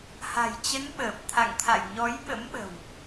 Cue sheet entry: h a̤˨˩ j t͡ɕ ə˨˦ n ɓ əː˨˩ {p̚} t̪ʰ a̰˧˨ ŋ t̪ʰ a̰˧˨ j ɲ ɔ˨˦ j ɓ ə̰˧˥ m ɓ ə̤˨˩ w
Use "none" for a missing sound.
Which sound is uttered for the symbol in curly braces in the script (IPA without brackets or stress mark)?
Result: p̚